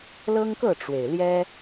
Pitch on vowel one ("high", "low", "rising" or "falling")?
high